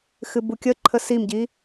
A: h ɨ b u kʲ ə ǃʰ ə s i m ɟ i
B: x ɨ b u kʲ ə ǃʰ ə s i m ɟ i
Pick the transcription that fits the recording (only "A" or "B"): B